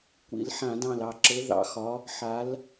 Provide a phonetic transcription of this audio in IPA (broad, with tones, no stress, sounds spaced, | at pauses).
kʷ ḭ˧˩˧ l ħ ã˧˩˧ d ɑ̃˧˩ l ɑ˧˩ ǁ ɤ˨˦ ð ɑ̰˨˦ x ɒ˨˦ | ħ a˨˦ l